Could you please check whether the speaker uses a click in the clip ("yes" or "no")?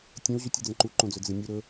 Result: yes